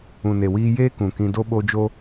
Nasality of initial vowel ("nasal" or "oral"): nasal